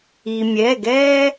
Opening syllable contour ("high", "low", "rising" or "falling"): low